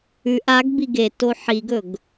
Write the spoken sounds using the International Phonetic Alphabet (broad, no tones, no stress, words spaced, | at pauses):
ʉʔ aɡ biɡeto ħiɡɵɡ